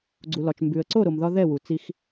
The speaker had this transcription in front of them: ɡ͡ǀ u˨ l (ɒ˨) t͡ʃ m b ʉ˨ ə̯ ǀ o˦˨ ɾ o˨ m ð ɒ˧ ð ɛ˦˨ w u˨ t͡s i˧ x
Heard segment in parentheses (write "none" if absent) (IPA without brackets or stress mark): ɒ˨